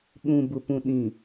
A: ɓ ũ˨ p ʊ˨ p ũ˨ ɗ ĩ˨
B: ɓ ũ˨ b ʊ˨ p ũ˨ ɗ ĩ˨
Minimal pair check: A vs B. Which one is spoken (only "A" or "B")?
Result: B